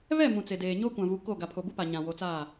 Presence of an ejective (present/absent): absent